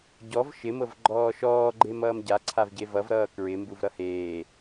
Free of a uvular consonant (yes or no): yes